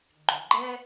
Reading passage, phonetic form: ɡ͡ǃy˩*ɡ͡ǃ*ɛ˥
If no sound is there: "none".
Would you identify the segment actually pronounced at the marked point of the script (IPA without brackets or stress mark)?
ɡ͡ǃ